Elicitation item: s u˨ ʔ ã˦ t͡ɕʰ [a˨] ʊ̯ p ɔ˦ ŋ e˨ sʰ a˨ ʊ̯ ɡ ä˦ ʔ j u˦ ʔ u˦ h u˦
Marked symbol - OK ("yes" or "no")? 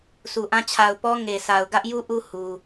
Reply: yes